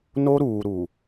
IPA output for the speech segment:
no˦ɾuː˨ɾu˨

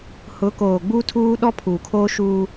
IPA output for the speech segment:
hʊ˨˦koː˨ ɡ͡bu˦tʰuː˦ ɗɔ˦pʰuː˨ kʰoː˦ʃuː˦

